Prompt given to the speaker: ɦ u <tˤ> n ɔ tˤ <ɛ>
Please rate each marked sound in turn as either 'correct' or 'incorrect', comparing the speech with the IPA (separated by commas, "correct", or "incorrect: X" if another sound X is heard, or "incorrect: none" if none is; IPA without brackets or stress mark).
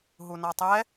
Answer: incorrect: none, correct